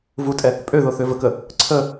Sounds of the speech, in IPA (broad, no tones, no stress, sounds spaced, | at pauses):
v u tʼ ɛ | pʼ ø ð o θ ø v ə k ə | ǀʰ ə